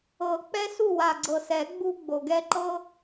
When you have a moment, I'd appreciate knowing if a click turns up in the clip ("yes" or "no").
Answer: yes